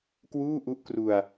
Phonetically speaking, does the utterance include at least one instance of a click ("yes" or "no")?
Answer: no